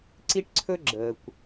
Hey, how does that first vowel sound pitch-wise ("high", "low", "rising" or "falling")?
high